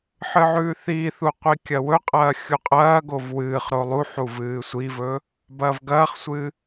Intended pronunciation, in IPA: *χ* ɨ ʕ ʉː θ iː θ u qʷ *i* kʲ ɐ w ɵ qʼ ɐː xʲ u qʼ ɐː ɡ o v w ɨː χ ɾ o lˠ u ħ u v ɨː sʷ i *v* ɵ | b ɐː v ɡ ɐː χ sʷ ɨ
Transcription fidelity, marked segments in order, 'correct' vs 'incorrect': incorrect: ħ, correct, correct

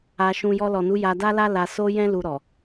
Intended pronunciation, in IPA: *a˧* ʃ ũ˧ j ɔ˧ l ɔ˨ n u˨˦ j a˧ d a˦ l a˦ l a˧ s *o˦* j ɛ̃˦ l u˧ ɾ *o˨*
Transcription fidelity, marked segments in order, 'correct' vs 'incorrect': correct, correct, incorrect: ɔ˨

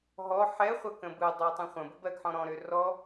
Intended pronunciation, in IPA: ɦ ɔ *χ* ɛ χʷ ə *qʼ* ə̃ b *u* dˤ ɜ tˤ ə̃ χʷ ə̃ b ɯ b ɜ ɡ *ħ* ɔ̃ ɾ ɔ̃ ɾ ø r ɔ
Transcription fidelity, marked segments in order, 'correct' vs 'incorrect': incorrect: ħ, incorrect: k, incorrect: ɯ, correct

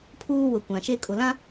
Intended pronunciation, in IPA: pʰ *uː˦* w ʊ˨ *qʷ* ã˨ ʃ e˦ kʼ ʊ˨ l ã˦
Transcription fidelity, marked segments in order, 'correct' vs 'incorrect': correct, incorrect: kʷ

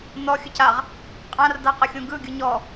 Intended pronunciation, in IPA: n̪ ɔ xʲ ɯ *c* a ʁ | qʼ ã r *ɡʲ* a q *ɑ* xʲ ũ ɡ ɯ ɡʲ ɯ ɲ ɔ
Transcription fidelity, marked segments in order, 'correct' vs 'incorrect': correct, incorrect: d̪, incorrect: ə

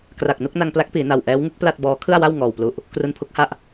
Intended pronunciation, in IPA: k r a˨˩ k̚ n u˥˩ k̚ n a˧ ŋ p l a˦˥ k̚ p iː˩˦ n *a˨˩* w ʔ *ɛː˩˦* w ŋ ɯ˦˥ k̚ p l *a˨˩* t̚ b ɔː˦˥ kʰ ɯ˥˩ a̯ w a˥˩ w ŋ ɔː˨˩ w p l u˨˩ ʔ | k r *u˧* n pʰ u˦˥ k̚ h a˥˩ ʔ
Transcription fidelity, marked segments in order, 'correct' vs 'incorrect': correct, incorrect: ɛː˦˥, incorrect: a˥˩, correct

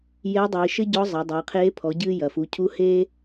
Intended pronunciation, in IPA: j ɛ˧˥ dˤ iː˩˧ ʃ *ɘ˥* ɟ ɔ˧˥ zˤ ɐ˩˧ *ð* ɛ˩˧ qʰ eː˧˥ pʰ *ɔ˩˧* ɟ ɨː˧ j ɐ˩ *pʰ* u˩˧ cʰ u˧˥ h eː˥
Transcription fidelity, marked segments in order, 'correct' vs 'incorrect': correct, incorrect: dˤ, correct, incorrect: f

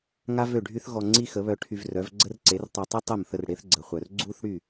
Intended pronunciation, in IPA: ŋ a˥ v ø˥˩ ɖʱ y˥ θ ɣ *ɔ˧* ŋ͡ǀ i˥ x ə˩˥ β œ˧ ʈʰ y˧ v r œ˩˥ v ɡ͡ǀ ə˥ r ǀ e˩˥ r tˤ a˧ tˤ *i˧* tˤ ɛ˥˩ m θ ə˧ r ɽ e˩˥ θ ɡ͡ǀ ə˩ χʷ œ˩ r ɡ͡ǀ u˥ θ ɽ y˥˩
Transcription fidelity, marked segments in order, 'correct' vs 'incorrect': correct, incorrect: i˥

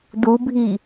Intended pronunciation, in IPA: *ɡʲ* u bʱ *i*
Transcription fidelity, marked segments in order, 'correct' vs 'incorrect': incorrect: d, correct

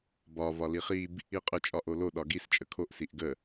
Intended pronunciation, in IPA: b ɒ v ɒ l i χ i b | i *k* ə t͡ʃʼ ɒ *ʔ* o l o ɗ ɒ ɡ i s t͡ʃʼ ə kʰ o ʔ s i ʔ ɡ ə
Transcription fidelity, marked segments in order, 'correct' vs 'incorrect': incorrect: qʼ, correct

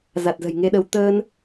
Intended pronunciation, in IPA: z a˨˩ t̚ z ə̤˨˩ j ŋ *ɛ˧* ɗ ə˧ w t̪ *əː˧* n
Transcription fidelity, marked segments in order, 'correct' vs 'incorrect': incorrect: e˧, correct

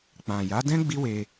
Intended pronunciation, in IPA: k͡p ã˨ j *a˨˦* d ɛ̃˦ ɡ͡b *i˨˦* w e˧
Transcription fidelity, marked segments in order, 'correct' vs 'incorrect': correct, incorrect: i˦

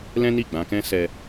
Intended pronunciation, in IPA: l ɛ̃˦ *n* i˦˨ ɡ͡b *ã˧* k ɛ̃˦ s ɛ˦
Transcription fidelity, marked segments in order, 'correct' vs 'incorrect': correct, correct

